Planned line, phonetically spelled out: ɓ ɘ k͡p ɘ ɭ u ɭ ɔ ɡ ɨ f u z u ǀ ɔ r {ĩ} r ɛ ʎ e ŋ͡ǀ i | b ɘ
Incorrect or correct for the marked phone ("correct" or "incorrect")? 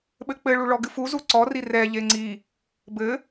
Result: incorrect